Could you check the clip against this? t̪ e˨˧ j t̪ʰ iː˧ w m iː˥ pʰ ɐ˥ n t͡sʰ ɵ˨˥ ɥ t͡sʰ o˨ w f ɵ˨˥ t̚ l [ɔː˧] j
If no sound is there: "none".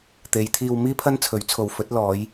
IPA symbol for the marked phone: ɔː˨˧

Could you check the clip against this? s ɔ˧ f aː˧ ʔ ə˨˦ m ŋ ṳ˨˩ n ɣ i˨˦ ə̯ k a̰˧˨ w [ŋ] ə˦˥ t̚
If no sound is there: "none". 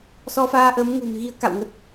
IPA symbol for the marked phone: ŋ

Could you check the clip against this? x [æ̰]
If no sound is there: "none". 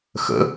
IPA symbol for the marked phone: ə̰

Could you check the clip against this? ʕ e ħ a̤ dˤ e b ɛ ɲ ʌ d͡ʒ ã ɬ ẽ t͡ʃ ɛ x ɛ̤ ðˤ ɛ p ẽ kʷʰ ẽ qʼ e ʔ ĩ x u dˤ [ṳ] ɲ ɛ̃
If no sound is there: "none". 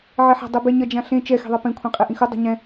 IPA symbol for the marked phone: ṳ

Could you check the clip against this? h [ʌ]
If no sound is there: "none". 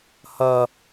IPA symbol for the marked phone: ʌ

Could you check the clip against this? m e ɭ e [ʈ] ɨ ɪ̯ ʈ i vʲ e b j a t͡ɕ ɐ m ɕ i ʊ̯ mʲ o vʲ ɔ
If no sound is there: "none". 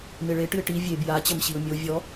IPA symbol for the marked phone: ʈ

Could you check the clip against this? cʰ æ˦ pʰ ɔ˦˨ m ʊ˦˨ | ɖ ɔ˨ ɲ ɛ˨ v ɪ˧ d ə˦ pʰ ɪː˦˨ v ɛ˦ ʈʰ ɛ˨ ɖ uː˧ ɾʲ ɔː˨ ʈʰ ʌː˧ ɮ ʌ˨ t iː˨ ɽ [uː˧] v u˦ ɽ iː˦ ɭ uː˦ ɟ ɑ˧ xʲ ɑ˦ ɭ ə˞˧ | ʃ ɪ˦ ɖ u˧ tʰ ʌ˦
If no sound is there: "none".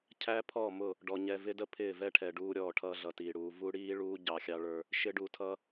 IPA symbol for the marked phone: uː˨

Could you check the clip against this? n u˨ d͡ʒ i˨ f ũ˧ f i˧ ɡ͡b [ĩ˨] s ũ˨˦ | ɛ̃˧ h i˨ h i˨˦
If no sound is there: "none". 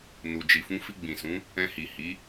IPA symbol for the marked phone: ĩ˨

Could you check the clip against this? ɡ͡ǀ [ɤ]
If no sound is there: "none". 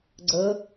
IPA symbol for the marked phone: ɤ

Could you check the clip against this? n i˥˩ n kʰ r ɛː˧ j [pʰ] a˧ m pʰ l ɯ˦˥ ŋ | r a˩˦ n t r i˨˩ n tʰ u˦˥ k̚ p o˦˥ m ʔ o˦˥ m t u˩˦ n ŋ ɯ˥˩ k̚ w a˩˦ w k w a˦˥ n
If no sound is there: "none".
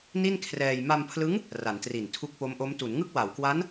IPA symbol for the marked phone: m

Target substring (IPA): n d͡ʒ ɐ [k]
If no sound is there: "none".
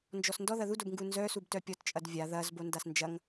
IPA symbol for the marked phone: ŋ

